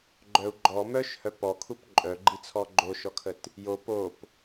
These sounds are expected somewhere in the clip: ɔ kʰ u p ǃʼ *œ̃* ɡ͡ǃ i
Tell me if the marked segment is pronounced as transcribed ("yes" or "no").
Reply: no